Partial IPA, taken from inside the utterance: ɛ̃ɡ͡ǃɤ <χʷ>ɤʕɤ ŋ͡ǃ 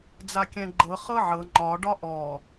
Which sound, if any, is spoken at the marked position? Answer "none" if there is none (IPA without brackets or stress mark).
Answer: χ